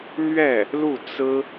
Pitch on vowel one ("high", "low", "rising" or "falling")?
falling